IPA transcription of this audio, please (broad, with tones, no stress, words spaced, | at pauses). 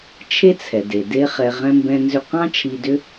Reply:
t͡ʃʰe˥t͡sʰɛ˩de˩ de˥χɛ˧ ʁɛ̃˥mbɛ̃˥ nzʏ˧qɑ̃˥ t͡ʃʰi˧dʏ˥